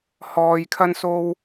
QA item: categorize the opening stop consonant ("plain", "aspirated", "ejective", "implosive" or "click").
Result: aspirated